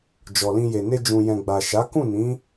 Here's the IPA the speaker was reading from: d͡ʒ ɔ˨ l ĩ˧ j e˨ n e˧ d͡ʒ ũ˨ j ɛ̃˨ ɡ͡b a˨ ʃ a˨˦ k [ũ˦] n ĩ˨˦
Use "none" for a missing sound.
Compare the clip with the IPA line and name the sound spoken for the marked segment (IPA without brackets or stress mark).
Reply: ũ˦˨